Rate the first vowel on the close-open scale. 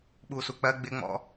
close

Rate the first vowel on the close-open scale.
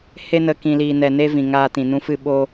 mid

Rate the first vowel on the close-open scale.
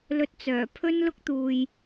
mid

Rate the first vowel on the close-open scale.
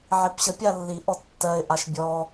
close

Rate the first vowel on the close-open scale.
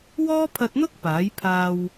mid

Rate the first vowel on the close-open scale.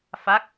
open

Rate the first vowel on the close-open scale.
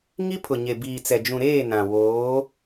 close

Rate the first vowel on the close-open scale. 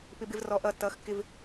close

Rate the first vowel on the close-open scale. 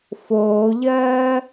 mid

